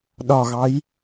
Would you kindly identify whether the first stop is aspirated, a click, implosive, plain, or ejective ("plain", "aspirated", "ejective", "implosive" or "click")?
implosive